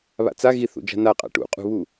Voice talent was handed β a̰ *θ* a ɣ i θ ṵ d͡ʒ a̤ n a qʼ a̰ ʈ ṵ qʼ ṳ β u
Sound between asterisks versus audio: incorrect: t͡s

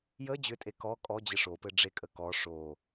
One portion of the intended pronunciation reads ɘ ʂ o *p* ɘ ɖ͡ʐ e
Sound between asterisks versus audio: correct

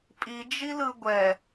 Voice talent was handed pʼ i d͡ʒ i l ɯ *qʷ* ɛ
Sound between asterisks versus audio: incorrect: ɡʷ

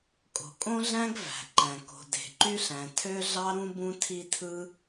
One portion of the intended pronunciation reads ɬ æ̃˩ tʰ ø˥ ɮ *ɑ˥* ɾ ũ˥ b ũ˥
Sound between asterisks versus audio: correct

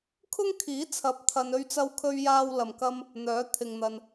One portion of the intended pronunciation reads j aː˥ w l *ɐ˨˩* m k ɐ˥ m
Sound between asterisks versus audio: incorrect: ɐ˨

